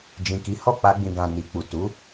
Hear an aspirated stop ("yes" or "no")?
no